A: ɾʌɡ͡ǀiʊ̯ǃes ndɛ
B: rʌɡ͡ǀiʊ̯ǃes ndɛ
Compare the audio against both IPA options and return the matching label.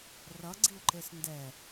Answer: B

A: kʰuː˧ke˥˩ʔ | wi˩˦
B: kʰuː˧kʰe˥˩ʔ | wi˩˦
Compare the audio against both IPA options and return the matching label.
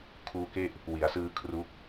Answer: A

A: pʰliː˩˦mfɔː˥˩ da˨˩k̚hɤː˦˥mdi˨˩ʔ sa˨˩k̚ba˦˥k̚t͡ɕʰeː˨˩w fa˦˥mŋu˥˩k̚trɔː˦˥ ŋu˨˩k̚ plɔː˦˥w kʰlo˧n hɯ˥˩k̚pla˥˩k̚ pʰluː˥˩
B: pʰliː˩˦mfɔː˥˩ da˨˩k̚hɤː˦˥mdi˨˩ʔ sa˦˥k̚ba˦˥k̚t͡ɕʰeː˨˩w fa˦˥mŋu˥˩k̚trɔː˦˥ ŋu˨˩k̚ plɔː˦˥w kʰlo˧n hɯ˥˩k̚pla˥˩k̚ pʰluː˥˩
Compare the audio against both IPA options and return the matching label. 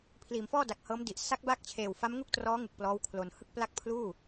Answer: B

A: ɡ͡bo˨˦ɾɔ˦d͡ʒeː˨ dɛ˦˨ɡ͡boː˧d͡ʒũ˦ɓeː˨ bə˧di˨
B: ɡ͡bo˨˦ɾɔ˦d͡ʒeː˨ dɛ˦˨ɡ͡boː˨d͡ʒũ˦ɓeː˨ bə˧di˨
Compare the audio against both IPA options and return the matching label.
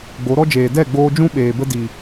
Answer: A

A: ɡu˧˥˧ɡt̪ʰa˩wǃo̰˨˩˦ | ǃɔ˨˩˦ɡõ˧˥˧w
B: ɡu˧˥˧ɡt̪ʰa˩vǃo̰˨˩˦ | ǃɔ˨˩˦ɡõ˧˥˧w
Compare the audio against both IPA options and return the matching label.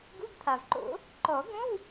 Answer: B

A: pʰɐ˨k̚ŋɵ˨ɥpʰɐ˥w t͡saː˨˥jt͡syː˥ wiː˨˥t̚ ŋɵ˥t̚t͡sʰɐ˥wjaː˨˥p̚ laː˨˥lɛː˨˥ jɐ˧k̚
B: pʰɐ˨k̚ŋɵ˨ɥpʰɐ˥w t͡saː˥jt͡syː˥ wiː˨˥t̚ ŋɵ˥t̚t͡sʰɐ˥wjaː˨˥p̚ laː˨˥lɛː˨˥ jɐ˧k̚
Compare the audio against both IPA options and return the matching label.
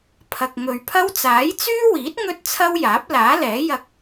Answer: A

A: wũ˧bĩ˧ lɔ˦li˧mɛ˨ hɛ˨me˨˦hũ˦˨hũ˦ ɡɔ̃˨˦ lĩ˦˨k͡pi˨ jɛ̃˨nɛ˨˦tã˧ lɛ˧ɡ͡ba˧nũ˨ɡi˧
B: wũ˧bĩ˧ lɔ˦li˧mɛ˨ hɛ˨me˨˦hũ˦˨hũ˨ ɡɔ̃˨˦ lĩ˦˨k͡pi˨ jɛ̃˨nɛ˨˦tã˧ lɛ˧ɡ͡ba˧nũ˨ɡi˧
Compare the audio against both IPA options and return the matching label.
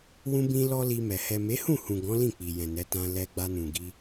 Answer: B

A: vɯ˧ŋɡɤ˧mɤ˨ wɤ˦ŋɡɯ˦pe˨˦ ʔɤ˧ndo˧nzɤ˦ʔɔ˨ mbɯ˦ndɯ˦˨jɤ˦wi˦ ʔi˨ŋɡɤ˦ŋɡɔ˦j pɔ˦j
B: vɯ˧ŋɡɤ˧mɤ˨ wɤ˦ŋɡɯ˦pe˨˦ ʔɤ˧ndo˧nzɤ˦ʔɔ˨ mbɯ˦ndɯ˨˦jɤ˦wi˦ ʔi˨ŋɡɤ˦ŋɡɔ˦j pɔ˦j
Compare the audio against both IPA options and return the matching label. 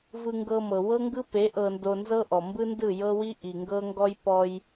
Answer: A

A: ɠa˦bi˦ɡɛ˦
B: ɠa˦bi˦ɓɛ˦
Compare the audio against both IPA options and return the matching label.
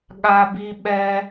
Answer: B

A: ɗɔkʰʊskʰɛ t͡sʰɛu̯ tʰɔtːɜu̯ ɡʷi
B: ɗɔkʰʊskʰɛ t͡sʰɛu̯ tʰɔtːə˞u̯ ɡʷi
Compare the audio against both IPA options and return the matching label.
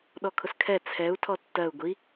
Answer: A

